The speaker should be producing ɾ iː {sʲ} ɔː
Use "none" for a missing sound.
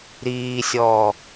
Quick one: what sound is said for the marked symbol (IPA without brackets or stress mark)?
sʲ